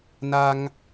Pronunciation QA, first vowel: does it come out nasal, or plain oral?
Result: oral